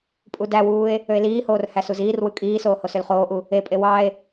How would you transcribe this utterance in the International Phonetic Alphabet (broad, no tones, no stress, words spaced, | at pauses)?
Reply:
pʼudæwuːe̯ | øe̯liːhoːr hæsuziːrwɯ kʼiːsoː hosølχoːʔu | epʼe wɑe̯